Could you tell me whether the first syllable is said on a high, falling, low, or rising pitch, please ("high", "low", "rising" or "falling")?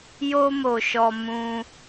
high